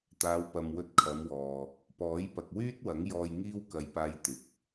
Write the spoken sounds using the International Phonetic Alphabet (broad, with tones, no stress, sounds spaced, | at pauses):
t̪ aː˨˧ w p ɐ˨ m w ɵ˧ t̚ kʰ ɐ˨˧ m w ɔː˨ | p ɔː˨˥ j p ɐ˨ k̚ w yː˥ t̚ w ɐ˨˥ ŋ j ɔː˧ j ŋ iː˥ w k ɐ˨ j p aː˧ j t̪ ɪ˨ k̚